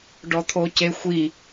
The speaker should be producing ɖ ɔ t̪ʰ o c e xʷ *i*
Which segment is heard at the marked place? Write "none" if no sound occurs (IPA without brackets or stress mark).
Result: i